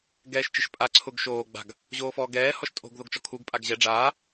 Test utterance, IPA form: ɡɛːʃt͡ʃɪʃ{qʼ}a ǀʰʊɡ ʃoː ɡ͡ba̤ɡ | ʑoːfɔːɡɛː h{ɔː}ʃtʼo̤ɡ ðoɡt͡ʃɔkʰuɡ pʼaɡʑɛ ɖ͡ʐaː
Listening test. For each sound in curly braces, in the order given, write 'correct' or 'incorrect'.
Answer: incorrect: pʼ, incorrect: ɔ

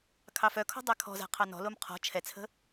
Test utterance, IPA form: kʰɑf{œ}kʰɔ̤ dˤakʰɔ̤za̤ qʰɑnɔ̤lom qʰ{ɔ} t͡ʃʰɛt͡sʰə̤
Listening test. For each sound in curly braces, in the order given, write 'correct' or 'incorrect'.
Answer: correct, incorrect: ɔ̤

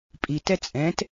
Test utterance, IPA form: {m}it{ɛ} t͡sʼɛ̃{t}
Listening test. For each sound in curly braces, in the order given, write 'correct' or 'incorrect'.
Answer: incorrect: pʼ, correct, correct

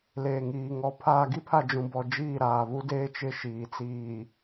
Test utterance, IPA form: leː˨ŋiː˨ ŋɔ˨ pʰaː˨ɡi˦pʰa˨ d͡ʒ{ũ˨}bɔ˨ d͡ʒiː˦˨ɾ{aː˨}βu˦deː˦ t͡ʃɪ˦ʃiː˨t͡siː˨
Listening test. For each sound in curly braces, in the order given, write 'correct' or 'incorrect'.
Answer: correct, correct

